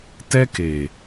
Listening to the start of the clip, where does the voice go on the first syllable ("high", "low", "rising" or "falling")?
high